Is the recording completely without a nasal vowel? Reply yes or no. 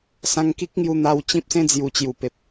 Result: no